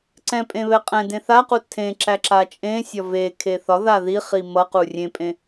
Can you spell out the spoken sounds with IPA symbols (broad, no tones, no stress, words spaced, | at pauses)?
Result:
ǀɛ̃pʼẽ βɛqʼɛ̃dẽ θaqu tʰẽ ǁæǁat͡ʃʼẽsʲɒ ve kʰeθɒða ðiχi mʌqu rʲẽpʼẽ